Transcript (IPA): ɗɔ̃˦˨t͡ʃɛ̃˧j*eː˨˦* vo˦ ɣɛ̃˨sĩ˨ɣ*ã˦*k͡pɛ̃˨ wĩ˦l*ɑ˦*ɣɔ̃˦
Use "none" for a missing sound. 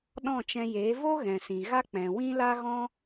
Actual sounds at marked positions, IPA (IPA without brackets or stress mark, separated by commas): eː˨˦, a˦, a˦